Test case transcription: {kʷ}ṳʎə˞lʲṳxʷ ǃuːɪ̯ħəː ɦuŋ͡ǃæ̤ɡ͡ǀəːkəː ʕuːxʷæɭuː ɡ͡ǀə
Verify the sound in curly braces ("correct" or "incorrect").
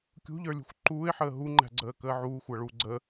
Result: incorrect